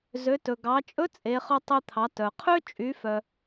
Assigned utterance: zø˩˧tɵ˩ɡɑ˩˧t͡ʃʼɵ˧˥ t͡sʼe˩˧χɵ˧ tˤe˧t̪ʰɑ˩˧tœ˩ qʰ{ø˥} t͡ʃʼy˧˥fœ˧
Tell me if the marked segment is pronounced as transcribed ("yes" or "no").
yes